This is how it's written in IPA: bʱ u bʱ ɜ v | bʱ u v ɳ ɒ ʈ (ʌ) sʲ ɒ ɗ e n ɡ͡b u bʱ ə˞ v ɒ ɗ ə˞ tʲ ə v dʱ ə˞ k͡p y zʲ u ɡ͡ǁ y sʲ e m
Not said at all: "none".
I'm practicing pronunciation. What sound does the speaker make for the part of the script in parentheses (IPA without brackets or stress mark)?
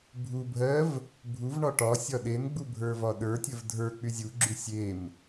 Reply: ɒ